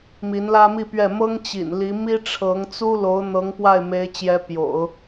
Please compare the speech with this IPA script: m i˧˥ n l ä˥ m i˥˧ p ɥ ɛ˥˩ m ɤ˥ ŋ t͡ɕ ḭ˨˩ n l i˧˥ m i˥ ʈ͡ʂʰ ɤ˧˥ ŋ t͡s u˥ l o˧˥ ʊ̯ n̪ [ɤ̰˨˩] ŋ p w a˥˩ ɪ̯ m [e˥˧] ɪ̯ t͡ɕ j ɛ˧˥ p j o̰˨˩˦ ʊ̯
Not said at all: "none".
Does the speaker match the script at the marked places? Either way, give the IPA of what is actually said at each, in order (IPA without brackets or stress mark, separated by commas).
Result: ɤ˧˥, e˧˥